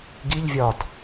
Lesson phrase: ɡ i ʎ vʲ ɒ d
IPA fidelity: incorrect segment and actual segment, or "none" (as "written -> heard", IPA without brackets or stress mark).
none